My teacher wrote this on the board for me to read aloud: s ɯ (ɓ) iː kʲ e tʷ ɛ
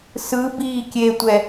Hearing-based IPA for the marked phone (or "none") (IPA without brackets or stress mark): b